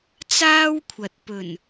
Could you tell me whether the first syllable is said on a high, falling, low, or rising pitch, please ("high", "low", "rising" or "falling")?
high